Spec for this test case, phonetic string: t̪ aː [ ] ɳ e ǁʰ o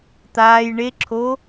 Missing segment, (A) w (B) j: B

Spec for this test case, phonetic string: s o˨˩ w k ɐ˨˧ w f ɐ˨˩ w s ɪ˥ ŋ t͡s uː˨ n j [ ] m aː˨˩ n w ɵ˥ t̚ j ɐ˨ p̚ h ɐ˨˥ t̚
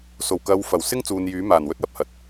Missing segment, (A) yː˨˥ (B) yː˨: A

